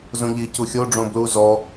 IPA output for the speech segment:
zõʎi cuxʲo ɖ͡ʐõblu zɔ

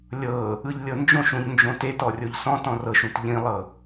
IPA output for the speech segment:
lʲɤ | ɯʎlʲɤnd͡ʒõʃ ũʎnd͡ʒõtet ɔrʲoʎsɔ̃ tɔ̃rɤʃũt ʎĩlˠɤ

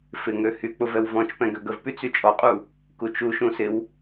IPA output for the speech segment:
fɪŋø hyk͡pʊ vɛwvɔ̃t͡ʃpɛ̃ ɡøɡəvpy t͡syt͡ʃʼɔqʼu | kut͡ʃuʃũ sɪw

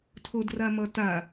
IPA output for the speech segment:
tʰodramʌta

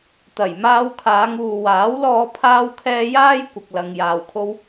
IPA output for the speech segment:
t̪ɐ˨˩jmaː˧w kʰaː˨˧ŋuː˨waː˨˥wlɔː˧ pʰaː˥wkʰɛː˥ jaː˥j kʷɐ˧k̚lɐ˧ŋ jaː˨wkʰo˧w

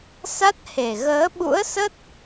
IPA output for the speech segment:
sa˦˥t̚he˨˩ ɣəː˨˦ ɓṵ˧˥ə̯sə˦˥t̚

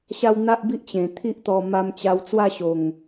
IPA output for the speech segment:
ɕa˦w n̪a˦ʔbi˦ʔ t͡ɕẽ˨˩t̪ʰi˦ʔt̪ɔ˧ ma˧mt͡ɕa˧w t͡swa˥˧ɕo˨˩ŋ

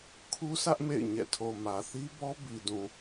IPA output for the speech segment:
kʰu˦sʰä˦ʔ mḛ˦˨ɪ̯ɲɛ̰˦˨ tʰo˨mä˨θi˦bɔ˦ bi˨dũ˨

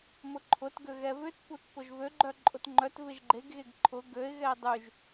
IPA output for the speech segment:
mʊǃʰʊtɡø ɣɛvʏtput pʊʒvøɡ͡ǃœ ǃʼʊtŋ͡ǃœtvɪʒ ɡ͡ǃeɡɣeɡ ǃʰʊ ɡøɪ̯ɣɛɪ̯ dˤyʒ

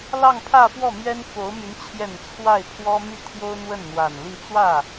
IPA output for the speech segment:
lɑ˥˧ŋpʰä˥˧fwɔ˥˩ mɥɛ˥nfo˧˥ʊ̯my˧˥n t͡ɕʰjɛ˨˩n t͡sʰwa˥˩ɪ̯pʰwɔ˥my˥˩ t̪ʰjo˥ʊ̯n̪wə˥˩nn̪wa˨˩nli˥˧ t͡swä˥˩

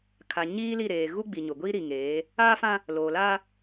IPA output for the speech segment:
kʰa˨ ɲiː˦li˦˨ɾeː˨ ɣu˦ɡ͡bi˨ɲʊ˨ɡʷi˦ ɾi˨ŋeː˨˦ | aː˦fã˦ | loː˨laː˦

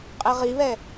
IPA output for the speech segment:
qʼɛʁiβɛ

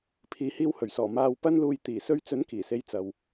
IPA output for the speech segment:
pʰiː˨hiː˧whɵ˨˩ɥsɔː˨˩ maː˧wpɐ˥nluː˧j t̪iː˨˩sɵ˧ɥt͡sɵ˨˥n kiː˨˩se˨˧j t͡sɐ˨w

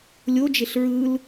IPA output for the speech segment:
lʲo d͡ʒeɬɹɯl

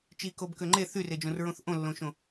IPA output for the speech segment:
t͡ʃikobkø ŋ͡ǃe θyred͡ʒõrɹõθ ʔõlːõʃõ

